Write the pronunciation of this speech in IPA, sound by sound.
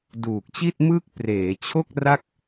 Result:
d uː˨˩ k̚ t͡ɕ i˥˩ t̚ m ɯː˥˩ k̚ p r eː˩˦ t͡ɕʰ o˥˩ k̚ r a˥˩ k̚

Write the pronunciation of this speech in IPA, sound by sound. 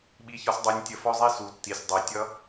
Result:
ɓ i˧ ç ɒ˧ s dˤ ɜ˧ nʲ tʲ ə˧ f ɔ˦ zˤ i˦ s u˨ tː i˨ sʲ dˤ ɜ˨ tʲ ʌ˧

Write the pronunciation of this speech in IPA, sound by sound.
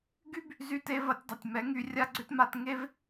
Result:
ɡ y˦ b | z y˧ t e˧ v ɐ˧ tʲ dˤ ɐ˨ tʲ m ɛ˨˦ ŋ y˧ rʲ a˦ ɡ͡ǀ ʏ˦ t m a˧ t ŋ e˦ v

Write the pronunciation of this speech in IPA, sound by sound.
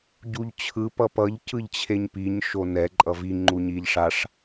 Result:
ɟ u ʎ t͡ɕʰ ɯ p ʌ p ʌ ʎ c ɯ ʎ t͡ɕʰ e ɲ p i ɲ ʃ o n ɛ ǃʼ ʌ v i ŋ͡ǃ u ɲ i ʎ ʂ a ʂ

